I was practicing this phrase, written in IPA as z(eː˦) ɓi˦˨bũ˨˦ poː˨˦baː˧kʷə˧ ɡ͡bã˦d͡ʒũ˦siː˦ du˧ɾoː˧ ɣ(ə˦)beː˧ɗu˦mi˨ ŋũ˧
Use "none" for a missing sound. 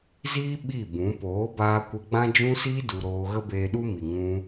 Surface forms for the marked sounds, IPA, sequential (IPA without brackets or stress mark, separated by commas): iː˦, ə˦